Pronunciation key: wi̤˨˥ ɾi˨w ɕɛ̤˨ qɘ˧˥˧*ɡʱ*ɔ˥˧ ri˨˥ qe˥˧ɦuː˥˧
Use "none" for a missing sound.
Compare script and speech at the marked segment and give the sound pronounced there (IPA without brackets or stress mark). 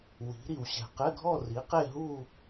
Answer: ɡʱ